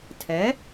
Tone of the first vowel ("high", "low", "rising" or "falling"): rising